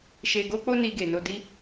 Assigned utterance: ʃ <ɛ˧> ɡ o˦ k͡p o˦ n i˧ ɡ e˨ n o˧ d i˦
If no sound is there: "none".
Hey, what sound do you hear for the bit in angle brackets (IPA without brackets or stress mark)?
e˧